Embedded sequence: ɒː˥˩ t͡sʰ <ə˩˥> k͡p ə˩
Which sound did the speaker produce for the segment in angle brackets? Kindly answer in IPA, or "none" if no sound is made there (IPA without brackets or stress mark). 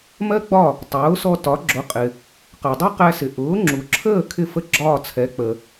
ɛ˩˥